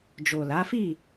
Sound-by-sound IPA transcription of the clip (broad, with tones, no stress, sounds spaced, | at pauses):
d͡ʒ o˨ l a˨˦ f i˦˨